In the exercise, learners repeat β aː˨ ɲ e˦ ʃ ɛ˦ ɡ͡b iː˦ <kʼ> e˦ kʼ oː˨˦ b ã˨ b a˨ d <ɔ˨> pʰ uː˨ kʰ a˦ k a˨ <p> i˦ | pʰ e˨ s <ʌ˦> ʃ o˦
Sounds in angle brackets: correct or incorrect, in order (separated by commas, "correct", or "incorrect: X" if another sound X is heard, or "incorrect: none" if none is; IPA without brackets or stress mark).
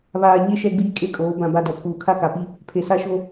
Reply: correct, correct, correct, incorrect: a˦